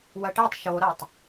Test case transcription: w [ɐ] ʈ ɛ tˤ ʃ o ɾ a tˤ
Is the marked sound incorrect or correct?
correct